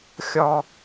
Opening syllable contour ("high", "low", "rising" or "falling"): high